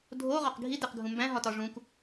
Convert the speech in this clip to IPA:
dʱ o ʁ ɒ q ɡʱ i d e q ɡʱ ũ m b æ̃ ɦ ɒ t ɒ ʐ ũ k

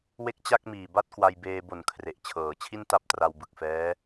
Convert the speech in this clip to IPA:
w e˥˩ k̚ t͡ɕ a˥˩ k̚ m iː˨˩ b a˥˩ t̚ k w a˧ j b eː˧ b o˨˩ n kʰ r e˨˩ ʔ t͡ɕʰ ɤː˩˦ t͡ɕʰ i˥˩ n t a˥˩ p̚ t r a˧ w b ɯ˨˩ k̚ f ɛː˦˥

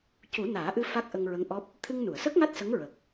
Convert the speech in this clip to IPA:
c u˨˩˦ n aː˨˩˦ ʔ ɨ˧ f a˦˥ k̚ ʔ ə˧ ŋ ɹ ə˧˥ ŋ ʔ ɔ˦˥ p̚ | t̪ʰ ɨ˧ ŋ n u˨˩˨ ə̯ s ə˦˥ k̚ ŋ a˦˥ t̚ s ə˧˥ ŋ ɹ ə˨˩ k̚

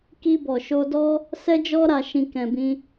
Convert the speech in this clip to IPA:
k i˧ b ɔ˨ ʃ o˧ d ɔ˦ | s ɛ˧ d͡ʒ ɔ˧ ɾ a˨ ʃ ĩ˨ k ɛ̃˨ b ĩ˧

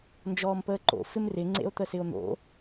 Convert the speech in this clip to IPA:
n d͡ʒ ɔː m p əː ǃ o̰ f ɪ m r ɪ ŋ͡ǀ ḛ o̯ t̪ ə s ɪ o̯ n̪ o̰

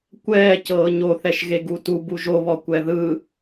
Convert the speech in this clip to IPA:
kʷ ɛː c ɤː ɲ o θ ɛ ʃ ɣ e ɡ u t u b u ʒ o β ɔ kʷ ɛ ð ɯ

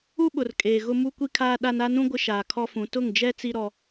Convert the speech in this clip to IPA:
u˦ ɓ ʊ˨ r kʼ eː˨ ɣ ʊ˦ m u˦ kʷ i˦ kʰ aː˦ ɗ a˦ n a˦ n ũ˦ ɡʷ ɪ˦ ʃ aː˨ kʰ ɔ˦ f ũ˨˦ t ʊ˦˨ ŋ d͡ʒ ɛ˦ t͡s i˦ ɾ ɔ˦

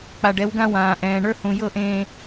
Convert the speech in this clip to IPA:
k͡p a˨ ɖ ɛ˨˦ w ɡ ã˦ w ãː˨ ʔ ɛ̃ː˨ ɳ ə˞˦ h ũ˨ j ɤ˦˨ ʔ ẽː˨

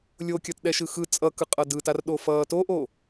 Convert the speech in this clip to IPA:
lʲ o kʲ ʌ t ɗ ɛ ʃ ɯ x ɯ t͡sʼ ʌ k ɯ qʼ ʌ d ɯ t a r ɗ o f ʌː t o ʔ o

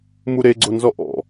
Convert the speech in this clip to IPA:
m u ɾ e ɡ͡ǀ o n z ɔ ʔ ɔ̰

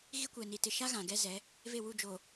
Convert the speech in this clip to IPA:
ɣ i˦ kʷ ɛ˨ n i˨ t ɪ˨ ʃ a˦ ɣ ã˨ ɡ ɛ˦ z ɛ˨˦ | v e˦˨ w u˦˨ d͡ʒ o˨

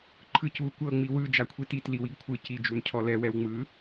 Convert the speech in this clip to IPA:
ǃʰ ɯ c u kʷ ɤ ŋ͡m i w ɯ d͡ʒ a kʷʰ i t i t l i w i ɡ kʷʰ ɯ c i d͡ʒ u n cʰ ɔ l ɛ w ɛ w ŋ͡m ɯ

